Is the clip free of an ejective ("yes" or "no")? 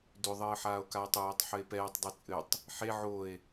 no